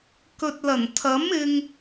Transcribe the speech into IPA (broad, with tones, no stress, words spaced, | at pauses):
kɵ˨t̚lɐ˨˩nt̪ʰɐ˨˥m ɪ˧ŋ